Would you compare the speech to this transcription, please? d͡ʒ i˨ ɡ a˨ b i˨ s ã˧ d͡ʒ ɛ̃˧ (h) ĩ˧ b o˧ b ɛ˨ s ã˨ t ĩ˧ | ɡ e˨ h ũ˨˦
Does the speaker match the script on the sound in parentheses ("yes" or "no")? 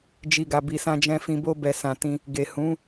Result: no